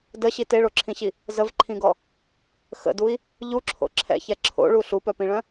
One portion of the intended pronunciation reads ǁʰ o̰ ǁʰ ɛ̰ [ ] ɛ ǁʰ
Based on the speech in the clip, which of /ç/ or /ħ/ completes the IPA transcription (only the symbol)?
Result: ç